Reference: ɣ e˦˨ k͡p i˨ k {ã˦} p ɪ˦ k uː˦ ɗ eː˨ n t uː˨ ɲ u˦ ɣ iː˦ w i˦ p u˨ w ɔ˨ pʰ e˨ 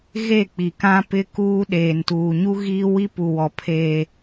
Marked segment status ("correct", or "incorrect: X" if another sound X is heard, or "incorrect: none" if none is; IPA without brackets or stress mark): correct